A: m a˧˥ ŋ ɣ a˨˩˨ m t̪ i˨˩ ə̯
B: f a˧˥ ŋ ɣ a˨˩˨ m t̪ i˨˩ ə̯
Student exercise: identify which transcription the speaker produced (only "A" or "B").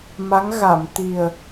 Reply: A